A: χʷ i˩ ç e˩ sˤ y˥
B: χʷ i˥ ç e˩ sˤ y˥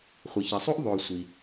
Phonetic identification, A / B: A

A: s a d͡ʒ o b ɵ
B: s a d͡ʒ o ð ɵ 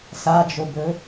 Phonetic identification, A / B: A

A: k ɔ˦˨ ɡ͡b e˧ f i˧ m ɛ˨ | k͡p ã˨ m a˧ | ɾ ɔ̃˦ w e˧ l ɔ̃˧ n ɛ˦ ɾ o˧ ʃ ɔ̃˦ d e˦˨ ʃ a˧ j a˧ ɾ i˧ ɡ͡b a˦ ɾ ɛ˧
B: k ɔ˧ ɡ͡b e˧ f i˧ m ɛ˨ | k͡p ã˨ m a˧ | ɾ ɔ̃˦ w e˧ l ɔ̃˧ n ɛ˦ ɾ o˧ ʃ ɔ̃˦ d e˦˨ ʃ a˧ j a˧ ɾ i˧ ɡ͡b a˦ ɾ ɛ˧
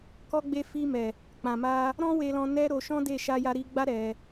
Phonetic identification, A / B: B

